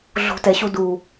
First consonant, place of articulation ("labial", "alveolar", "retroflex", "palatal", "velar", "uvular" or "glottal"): alveolar